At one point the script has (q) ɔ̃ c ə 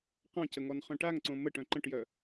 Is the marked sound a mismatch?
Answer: no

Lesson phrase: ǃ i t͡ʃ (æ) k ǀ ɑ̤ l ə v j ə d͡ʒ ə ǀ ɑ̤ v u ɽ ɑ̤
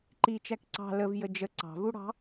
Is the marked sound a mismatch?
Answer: no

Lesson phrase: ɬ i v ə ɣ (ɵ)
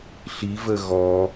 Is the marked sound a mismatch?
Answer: yes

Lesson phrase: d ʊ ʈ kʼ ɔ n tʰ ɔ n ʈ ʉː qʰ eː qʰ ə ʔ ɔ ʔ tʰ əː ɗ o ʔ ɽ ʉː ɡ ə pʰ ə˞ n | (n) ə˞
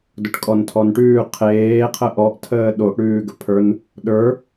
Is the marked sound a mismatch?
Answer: yes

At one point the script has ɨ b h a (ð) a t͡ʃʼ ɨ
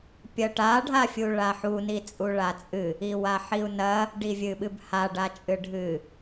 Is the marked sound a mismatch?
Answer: yes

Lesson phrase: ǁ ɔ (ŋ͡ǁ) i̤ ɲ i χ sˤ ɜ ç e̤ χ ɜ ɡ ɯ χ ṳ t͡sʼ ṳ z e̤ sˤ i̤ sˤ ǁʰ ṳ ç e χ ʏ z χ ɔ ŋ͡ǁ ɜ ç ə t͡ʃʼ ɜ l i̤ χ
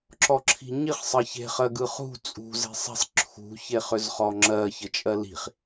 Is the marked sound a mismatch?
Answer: yes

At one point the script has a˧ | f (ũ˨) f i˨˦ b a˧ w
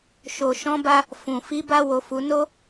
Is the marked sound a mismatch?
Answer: no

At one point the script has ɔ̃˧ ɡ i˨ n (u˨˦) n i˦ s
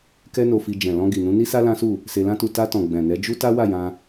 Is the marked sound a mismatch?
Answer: yes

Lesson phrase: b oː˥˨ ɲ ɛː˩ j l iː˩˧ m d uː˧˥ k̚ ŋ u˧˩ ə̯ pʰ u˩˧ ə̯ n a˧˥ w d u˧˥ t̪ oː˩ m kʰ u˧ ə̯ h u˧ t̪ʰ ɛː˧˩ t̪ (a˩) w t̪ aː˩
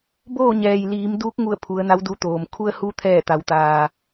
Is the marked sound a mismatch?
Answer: yes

